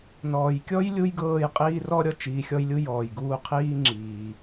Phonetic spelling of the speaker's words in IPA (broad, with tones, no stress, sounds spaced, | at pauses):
n ɔː˨ j kʲ ɔ˥ j lʲ u˥ j ɡ ɤː˦ j qʼ iː˦ r ɔ˥ ɾʲ ɔ˦ t͡ʃ iː˨ xʲ ɔ˦ j lʲ u˦ j ɔː˩ j ɡ uː˦ qʰ iː˥ ŋ͡ǁ iː˩